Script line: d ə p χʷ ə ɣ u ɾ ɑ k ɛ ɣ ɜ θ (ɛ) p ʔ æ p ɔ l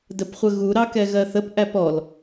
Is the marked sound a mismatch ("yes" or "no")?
yes